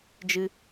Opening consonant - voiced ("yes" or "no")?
yes